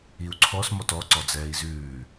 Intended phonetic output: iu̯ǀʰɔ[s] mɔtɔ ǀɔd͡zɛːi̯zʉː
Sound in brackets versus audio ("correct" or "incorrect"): correct